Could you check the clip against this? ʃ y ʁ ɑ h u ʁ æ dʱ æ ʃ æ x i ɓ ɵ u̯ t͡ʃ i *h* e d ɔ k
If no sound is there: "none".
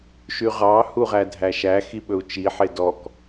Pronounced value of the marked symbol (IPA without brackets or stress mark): ħ